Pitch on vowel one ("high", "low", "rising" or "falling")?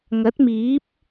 rising